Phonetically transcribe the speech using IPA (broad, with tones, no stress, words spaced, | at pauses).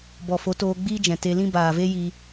bɔ˨fo˨˦toː˧ɡ͡biː˦ d͡ʒɛ̃˨te˧lĩ˦ baː˨ve˦ji˧